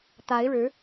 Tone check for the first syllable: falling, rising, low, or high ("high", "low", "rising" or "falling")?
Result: rising